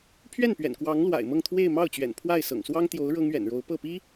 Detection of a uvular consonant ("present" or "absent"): absent